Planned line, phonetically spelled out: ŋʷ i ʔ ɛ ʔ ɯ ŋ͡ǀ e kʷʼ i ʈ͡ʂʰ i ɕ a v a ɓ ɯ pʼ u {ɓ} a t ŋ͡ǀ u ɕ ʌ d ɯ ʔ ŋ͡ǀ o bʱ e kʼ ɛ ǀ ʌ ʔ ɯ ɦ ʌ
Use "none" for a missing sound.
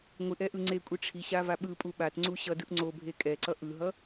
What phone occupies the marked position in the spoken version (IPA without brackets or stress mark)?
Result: ɓ